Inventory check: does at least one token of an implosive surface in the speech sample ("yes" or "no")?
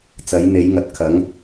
no